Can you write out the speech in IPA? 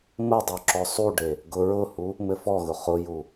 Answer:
mədˤu ǁɔsˤuɖe | ɡʊɹʊhu | mɘfɔɣʊ χʊju

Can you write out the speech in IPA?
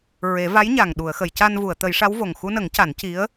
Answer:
ɹe˨˩˦va˧˥jɲa˨˩ŋ ɗu˨˩˨ə̯xə˨˩˨jca˧nvu˨˩˨ə̯ t̪ə˨˩˦j ʂa˧˥wvo˨˩ŋ xu˧nə˨˩˦ŋ ca˨˩˦nci˧˥ə̯

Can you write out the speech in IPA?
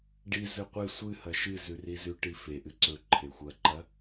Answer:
ɖi zɵqʷe sʷɨhɐ ʃɨzʉ rizʉʈi feʔɨ ǀɵ ǃʰexʷɐǃɐ

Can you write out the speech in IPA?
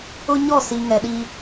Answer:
ʊ˦ɲɔ˦˨si˨ ŋɛ˨ɗi˦

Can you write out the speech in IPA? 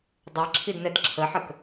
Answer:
dˤɛǁʰid nɛdǁʰəħək

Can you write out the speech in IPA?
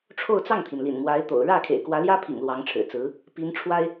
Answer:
ʈ͡ʂʰo˥˧ʊ̯t͡sɑ˥˩ŋt̪ʰi˩n lḭ˨˩nmwa˧˥ɪ̯t̪o̰˨˩ʊ̯ ɻä˥˩ kʰḛ˨˩ɪ̯kwä˧˥ljä˥pʰḭ˨˩ŋ lwɑ˧˥ŋʈ͡ʂʰɻ̩˨˩t͡sɹ̩˧˥ | pi˧˥nʈ͡ʂʰwa˥ɪ̯

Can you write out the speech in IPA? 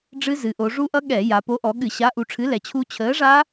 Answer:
ɖ͡ʐɨ˦˥zɨ˩˧ʔo˩˧ ʐu˦˥ʔʌ˦˥ ɠɛ˧˩˧ja˩˧ po˨˥ʔɔ˩˧ ɠɨ˧˩˧ɕa˨˥ ʔu˩˧ʈ͡ʂʰɨ˨˥ lɛ˩˧t͡ɕʰu˦˥ t͡ɕʰəː˨˥ʐa˦˥

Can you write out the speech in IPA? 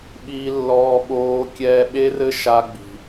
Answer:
ɓiː˦lːɔː˦ɓoː˦ kʲɛː˦ ɓe˦rɘ˦ ʃa˦ ɡ͡bi̤˦

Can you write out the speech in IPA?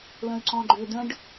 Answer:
lə̃y̯ǀɔ̃ɡ͡ǃʏ də̃ɖ

